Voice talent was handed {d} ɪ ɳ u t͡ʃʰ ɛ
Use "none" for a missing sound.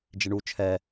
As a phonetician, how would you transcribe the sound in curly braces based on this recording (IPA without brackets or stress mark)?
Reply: d͡ʒ